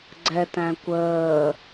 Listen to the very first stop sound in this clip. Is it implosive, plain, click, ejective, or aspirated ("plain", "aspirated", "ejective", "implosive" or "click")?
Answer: click